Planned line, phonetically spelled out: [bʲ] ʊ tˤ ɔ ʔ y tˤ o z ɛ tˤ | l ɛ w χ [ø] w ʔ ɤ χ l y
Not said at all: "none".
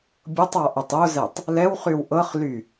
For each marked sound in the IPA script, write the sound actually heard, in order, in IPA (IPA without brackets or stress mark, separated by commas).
bʲ, y